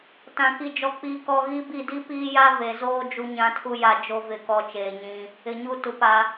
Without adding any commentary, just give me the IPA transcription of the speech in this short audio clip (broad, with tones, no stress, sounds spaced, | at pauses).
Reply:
t ã˨ k i˨ d͡ʒ ɔ˨ k͡p iː˨ k ɔ˨ ɣ i˦ b i˦˨ d i˦ p iː˦ j a˦ v e˨ z oː˦ d͡ʒ u˦ ɲ ã˦ tʰ u˦ j a˨ d͡ʒ o˦ v ɪ˦˨ k ɔ˦˨ t͡ʃ eː˨ ɲ ĩ˦ | ɪ˨ ɲ u˦ t u˨ p a˦